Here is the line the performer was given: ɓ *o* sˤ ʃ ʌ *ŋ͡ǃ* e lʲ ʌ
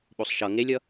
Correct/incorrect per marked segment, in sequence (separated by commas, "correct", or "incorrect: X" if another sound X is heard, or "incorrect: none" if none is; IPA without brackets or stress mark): correct, incorrect: ŋ